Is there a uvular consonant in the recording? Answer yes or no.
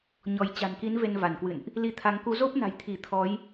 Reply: no